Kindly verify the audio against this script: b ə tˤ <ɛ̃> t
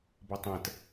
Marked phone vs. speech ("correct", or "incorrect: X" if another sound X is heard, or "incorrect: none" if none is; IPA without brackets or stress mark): correct